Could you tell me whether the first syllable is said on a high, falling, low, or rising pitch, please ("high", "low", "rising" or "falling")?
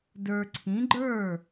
low